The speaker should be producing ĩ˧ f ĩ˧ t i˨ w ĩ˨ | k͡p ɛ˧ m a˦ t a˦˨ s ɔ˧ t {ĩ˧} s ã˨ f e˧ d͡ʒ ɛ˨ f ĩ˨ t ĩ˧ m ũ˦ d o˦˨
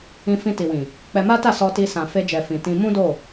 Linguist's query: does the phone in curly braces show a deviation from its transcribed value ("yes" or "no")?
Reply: yes